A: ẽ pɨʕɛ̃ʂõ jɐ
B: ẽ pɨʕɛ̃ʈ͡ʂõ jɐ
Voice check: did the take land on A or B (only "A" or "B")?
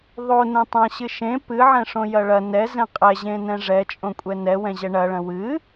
A